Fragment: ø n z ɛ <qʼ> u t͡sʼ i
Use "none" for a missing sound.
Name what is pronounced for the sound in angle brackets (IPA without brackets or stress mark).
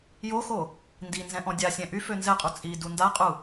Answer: qʼ